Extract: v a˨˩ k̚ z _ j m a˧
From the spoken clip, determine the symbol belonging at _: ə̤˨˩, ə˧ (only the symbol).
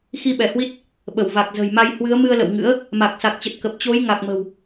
ə̤˨˩